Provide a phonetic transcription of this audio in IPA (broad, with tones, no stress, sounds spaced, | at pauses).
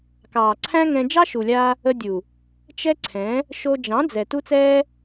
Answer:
k ɑː˨ ǀʰ æ̃˦ ŋ ɛ̃˧ d͡ʒ ɑ˦ ʃ u˨ lʲ aː˧ | ə˧ dʲ u˨ | t͡ʃ ɛ˦ ǀʰ ɛ̃˨˦ | ʃ o˧ d͡ʒ ɑ̃˨˦ d͡z ɛ˨ t u˦ t͡s ɛː˦